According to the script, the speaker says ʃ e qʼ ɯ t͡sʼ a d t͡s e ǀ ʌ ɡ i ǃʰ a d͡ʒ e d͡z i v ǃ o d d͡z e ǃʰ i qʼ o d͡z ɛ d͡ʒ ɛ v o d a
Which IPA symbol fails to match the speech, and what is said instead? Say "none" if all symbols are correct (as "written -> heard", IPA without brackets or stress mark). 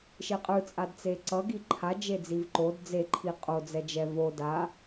none